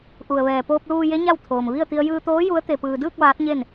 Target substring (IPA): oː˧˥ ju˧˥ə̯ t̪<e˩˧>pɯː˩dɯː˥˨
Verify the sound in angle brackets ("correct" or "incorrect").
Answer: incorrect